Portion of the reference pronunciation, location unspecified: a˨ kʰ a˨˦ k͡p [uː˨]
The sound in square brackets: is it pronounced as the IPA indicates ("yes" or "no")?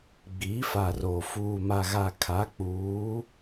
no